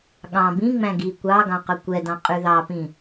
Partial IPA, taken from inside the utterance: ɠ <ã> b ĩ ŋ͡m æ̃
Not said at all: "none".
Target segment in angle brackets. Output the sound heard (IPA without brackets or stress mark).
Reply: ɑ̃